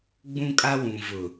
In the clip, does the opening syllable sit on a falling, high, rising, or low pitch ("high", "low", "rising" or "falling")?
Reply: high